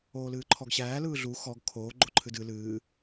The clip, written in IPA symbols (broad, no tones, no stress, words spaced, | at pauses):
oːlɨːǃʰɔɡɕæː lɯːɮu xɔɡ kʰoː ɡ͡ǃoǃʰɨdɨ lɨː